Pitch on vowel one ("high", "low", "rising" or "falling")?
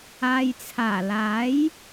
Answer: low